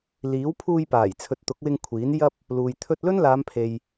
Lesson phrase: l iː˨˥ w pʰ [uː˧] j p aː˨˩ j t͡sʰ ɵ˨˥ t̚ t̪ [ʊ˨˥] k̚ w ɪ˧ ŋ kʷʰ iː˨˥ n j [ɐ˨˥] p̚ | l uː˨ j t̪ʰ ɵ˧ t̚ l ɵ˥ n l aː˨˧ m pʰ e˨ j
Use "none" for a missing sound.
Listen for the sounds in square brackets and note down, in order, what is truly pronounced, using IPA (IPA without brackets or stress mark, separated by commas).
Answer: uː˧, ʊ˨˥, ɐ˥